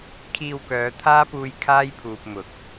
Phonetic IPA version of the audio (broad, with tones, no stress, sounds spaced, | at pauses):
kʰ iː˧ w k œː˨˧ t̪ʰ aː˥ p uː˧ j kʰ aː˥ j pʰ uː˨ p̚ m ʊ˨˥ k̚